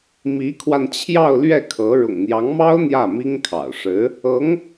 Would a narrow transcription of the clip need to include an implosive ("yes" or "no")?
no